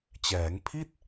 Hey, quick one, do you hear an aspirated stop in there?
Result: yes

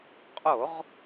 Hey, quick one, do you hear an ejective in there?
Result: yes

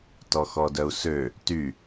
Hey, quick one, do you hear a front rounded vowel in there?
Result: yes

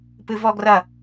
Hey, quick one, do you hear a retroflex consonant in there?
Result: no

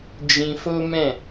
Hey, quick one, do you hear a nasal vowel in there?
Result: yes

